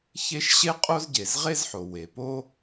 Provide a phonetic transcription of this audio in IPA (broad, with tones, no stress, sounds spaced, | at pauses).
ç e˥ ʃ ɕ e˥ qʼ o˥ z ɟ e˩ z ʁ e˥ z ħ o˩ w e˩ p o˥